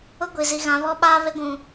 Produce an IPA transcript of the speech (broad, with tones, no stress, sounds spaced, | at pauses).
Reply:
ʊ˦ ɡʷ i˨ z i˨ ɣ ã˨˦ β ɔ˦ ɓ aː˦ β e˦ ɡʷ ũ˨